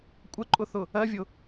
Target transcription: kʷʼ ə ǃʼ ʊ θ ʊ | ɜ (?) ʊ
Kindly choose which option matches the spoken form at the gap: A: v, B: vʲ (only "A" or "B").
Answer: B